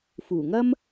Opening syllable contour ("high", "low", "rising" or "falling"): low